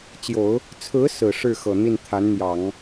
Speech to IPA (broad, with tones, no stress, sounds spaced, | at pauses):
t͡ɕ j o˨˩˦ ʊ̯ | t͡sʰ ɹ̩˧˥ s ɹ̩˨˩ ʂ ɻ̩˥˩ x ɤ˨˩ n̪ i˥˩ n t̪ʰ a˧˥ n n̪ j ɑ˨˩˦ ŋ